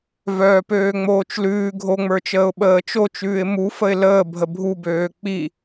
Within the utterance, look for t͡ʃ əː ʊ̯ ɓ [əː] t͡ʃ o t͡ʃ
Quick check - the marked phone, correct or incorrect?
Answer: correct